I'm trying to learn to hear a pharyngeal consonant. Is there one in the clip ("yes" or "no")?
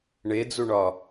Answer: no